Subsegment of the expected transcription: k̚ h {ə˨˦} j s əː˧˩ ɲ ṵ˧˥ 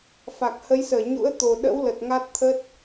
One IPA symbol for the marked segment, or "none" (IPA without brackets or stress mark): ə˨˦